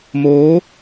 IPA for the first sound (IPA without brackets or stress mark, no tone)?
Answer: m